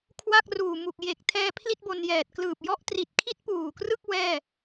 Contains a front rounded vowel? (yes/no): no